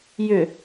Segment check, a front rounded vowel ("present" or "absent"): present